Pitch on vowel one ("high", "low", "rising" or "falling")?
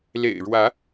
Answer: low